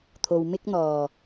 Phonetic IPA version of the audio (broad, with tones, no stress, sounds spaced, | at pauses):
t̪ʰ o˨ w m ɪ˥ k̚ n̪ ɔː˨˩